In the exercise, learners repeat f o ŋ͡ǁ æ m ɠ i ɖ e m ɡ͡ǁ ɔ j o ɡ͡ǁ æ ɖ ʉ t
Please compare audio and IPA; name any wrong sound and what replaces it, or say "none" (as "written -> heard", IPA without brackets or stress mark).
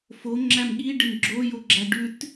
ɔ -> o